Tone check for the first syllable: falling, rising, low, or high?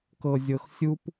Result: low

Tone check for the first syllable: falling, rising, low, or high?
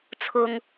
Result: low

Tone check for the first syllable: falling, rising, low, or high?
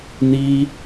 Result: high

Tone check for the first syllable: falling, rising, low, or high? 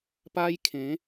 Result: high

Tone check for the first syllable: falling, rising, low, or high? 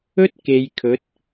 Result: high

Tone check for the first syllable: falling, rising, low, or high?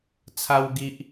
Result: high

